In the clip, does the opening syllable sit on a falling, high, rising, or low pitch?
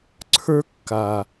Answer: high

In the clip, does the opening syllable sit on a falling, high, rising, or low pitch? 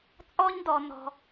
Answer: high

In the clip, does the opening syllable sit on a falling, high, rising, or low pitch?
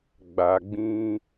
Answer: low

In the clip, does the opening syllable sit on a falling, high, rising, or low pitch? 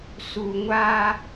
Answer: low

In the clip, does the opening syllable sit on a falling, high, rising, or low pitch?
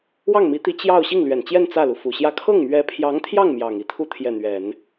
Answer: falling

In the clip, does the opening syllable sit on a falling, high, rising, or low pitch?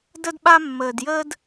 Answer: high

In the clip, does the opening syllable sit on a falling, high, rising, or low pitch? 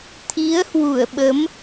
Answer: rising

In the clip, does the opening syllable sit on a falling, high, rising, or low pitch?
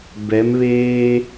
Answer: rising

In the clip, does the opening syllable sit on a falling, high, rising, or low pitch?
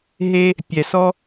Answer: high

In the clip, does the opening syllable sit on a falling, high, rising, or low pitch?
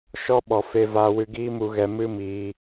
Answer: high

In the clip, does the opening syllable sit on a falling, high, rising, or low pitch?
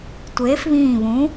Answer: rising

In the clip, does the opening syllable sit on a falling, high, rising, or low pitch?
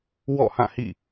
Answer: falling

